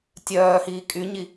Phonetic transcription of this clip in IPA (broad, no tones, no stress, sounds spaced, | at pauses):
tʲ œː h iː kʼ y ɲ i